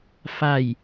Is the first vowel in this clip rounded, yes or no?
no